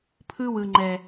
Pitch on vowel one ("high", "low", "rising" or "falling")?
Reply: high